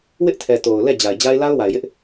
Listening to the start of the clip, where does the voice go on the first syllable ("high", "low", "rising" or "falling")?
high